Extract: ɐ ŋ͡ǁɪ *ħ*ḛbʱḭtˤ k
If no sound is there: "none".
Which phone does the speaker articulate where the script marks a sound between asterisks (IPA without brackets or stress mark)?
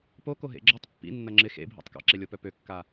x